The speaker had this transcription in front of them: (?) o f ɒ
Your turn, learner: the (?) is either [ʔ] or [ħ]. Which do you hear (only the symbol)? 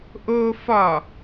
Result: ʔ